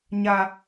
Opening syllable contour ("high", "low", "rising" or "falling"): high